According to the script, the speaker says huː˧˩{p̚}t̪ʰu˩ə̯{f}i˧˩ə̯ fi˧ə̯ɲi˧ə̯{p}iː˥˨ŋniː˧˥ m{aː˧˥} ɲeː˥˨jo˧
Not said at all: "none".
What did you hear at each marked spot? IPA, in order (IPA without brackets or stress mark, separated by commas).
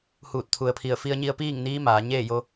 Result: t̚, pʰ, p, aː˩˧